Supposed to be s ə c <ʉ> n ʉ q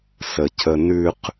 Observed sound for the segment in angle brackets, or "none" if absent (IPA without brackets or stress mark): ə